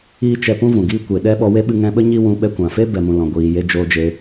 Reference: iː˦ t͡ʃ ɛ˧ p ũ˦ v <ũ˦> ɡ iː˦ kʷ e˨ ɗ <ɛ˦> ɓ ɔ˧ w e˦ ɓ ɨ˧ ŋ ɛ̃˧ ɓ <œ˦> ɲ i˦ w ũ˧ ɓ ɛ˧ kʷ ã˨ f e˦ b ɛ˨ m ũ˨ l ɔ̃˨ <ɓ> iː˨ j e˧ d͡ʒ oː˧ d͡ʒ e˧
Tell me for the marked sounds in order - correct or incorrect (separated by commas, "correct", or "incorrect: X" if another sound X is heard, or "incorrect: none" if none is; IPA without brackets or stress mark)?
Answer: incorrect: ũ˨, correct, incorrect: ə˦, incorrect: ɡʷ